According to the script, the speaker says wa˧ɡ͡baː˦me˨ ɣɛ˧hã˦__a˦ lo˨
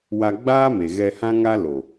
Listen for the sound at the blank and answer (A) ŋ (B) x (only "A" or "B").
A